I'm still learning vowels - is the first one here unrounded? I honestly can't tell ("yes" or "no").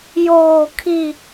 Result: no